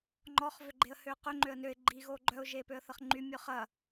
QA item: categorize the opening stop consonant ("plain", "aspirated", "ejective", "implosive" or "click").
click